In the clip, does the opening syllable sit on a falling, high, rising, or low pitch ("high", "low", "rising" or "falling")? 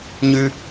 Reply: high